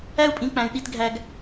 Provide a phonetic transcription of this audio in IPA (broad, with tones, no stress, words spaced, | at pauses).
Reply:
æ˦u̯pʼĩ˨˦k͡pæ̃˨y̯ ɗi˦tɡʱæ˦ɡ